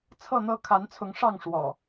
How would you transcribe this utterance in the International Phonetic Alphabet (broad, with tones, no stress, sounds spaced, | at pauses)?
t͡sʰ ɤ˥˨ n̪ ɤ˦ kʰ a˨˦ n t͡sʰ ʊ˨˦ ŋ ʂ ɑ˥˨ ŋ ʂ w ɔ̰˨˩